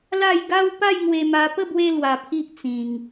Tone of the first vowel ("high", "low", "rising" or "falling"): falling